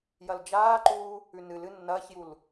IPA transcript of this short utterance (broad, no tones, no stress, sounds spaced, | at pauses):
j ɐ l d͡ʒ aː ǃ uː | ʉ n ɨ l ɨ nː ɐː ç j u l